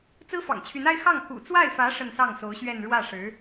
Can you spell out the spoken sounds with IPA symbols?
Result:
t͡s ɹ̩˥ f ɑ̰˨˩ ŋ t͡ɕʰ y˧˥ n a˥ ɪ̯ x ɑ˥˩ ŋ k ṵ˨˩ t͡s w a˥˩ ɪ̯ f ä˧˥ ʂ ə˥˧ n s ɑ˥˩ ŋ s o˧˥ ʊ̯ ɕ ɥ ɛ˥˧ n ɻ w ä˥˩ ʂ ɻ̩˧˥

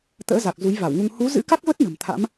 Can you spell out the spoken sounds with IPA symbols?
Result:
t̪ ə̰ː˧˥ z a˨˩ k̚ z u˨˦ j v a˧˩ w ŋ u˧ ŋ h u˨˦ z ɨ̰˧˥ k a˦˥ k̚ v ə˦˥ t̚ n ə̤˨˩ m t̪ʰ a̰˧˥ m

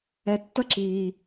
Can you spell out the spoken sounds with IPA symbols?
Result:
ɛ˨ tː ʌ˦ ǁ iː˨

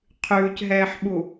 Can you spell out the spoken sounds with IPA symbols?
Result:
qʰ ʉː c ɦ ɛː ħ ɓ u

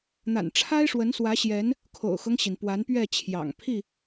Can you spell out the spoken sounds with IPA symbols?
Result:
n̪ a̰˨˩ n ʈ͡ʂʰ a˦ ɪ̯ ʂ w ə˨˦ n s w ä˨˦ ɕ j ɛ˨˦ n | kʰ o̰˨˩ ʊ̯ x ɤ˦ ŋ ɕ i˩ n p w a˨˦ n p ɥ ɛ˥˨ t͡ɕʰ j ɑ̰˨˩ ŋ pʰ i˥˨

